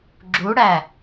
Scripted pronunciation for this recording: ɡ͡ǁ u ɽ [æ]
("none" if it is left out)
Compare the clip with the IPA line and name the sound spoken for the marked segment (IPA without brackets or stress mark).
æ